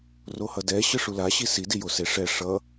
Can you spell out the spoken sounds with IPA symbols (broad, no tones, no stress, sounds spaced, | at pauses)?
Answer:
r o h ʌ d ɛ ɕ ɯ ʂ u l a ɕ i s i d i j o s e ʂ ɛ ʂ ʌ